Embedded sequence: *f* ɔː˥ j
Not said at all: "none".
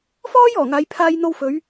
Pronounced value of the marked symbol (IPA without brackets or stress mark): f